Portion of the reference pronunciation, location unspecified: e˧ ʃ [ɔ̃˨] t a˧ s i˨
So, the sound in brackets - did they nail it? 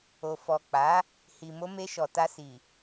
no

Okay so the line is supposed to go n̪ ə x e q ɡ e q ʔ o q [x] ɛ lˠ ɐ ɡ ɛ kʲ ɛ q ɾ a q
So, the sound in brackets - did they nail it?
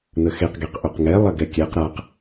no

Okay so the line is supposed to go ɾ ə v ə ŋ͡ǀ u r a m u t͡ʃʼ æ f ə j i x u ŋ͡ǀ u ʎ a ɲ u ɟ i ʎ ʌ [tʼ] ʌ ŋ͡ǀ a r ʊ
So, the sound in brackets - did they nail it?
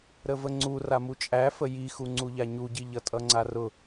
yes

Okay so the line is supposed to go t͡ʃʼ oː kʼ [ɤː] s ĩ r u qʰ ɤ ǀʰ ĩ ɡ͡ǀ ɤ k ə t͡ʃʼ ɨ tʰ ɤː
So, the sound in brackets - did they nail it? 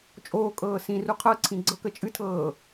yes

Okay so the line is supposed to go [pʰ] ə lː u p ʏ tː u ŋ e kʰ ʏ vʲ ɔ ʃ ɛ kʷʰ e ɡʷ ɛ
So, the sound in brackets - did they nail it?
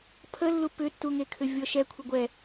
yes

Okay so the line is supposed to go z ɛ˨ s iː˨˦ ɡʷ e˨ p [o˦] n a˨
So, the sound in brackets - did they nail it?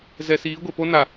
yes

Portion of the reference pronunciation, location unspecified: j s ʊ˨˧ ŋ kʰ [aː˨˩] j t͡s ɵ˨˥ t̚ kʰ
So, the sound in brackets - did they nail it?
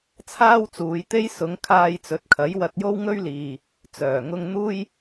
no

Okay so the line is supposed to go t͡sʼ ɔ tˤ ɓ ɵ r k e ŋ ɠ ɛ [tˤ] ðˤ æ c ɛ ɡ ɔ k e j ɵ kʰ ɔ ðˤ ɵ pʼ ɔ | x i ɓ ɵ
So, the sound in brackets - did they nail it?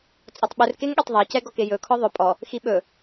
yes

